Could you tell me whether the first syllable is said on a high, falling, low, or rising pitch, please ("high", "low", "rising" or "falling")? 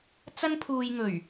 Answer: high